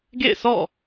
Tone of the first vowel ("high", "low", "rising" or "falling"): falling